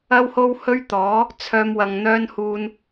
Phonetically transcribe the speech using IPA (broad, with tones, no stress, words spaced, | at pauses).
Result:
ɐ˥who˥whɵ˥ɥt̪ɔː˨˥ | t͡sʰœː˥mwɐ˧ŋ n̪œː˥nhuː˧n